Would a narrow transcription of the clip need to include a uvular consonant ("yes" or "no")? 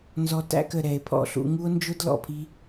no